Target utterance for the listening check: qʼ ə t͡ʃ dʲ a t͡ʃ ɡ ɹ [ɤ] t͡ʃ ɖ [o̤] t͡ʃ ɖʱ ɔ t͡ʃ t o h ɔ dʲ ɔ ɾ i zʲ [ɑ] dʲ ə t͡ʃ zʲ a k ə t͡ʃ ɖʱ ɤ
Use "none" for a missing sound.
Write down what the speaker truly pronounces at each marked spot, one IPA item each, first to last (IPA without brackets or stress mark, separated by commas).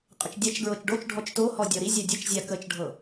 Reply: ɤ, o, a